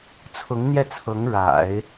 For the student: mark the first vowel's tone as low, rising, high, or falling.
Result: rising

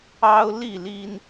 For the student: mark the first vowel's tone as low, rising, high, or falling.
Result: high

